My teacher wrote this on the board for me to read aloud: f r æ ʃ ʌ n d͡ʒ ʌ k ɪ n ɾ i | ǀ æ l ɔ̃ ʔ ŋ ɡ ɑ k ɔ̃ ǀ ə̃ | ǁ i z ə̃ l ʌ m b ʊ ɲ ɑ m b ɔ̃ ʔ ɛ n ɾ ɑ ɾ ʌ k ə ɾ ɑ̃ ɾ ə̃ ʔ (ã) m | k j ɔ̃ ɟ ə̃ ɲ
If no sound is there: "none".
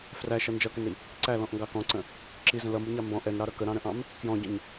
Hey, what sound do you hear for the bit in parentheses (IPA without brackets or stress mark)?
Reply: ɑ̃